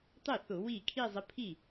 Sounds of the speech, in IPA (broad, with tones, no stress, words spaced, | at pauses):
tˤɘ˥˩θʊ˧˩˧ wiː˥˩ kʰiː˥˧zˤə˨˥ pʰi˥˩